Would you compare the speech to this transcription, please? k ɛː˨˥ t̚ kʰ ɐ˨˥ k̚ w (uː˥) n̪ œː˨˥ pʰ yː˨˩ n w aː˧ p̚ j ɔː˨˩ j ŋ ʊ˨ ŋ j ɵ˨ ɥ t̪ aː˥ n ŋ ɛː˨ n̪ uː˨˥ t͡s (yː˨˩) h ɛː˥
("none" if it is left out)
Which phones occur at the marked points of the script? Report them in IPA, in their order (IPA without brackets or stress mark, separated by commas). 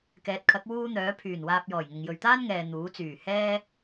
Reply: uː˥, yː˨˩